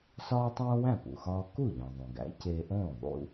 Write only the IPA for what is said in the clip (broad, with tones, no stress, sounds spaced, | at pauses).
s ɒː˥ tˤ õː˥ w æ̃˥˩ p ṵ˩ x ɒː˧ k u˥˩ ʎ ĩ˩ ðˤ õ˩ ɡ æ̰˩˥ c e˧ ʔ õː˥˩ ðˤ ṵ˧